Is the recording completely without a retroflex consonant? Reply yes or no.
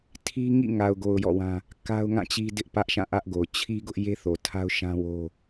yes